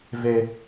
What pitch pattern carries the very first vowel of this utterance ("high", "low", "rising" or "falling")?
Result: high